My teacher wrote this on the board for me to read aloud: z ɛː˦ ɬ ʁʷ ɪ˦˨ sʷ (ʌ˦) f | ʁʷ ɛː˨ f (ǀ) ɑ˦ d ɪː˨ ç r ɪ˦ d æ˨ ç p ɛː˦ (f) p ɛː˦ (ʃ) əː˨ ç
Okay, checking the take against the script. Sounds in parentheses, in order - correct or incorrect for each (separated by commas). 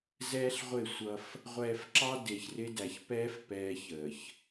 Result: correct, incorrect, correct, incorrect